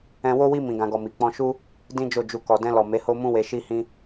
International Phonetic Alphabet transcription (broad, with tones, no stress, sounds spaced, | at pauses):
ɛ̃˧ w o˦ w i˦ m ĩ˧ ɡ ã˧ ɡ ɔ˧ m i˨ k͡p ɔ̃˧ ʃ u˦ | d ĩ˦ d͡ʒ o˦˨ d͡ʒ u˧ k ɔ˨ d ɛ̃˧ l ɔ˨ m e˨˦ h o˦ m ũ˦ w e˧ ʃ i˦ h ĩ˦